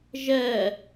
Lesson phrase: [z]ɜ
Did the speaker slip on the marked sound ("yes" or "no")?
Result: yes